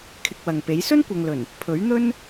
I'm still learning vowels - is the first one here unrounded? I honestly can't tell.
yes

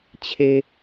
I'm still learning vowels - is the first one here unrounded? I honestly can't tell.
yes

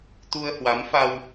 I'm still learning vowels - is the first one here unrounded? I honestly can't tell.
no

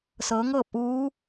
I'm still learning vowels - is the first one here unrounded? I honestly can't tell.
yes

